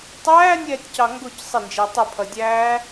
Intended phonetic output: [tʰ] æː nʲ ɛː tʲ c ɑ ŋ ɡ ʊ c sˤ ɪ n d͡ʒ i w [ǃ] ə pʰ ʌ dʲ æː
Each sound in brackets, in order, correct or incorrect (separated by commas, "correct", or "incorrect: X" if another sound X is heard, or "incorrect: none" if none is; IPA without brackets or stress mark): incorrect: tˤ, incorrect: tˤ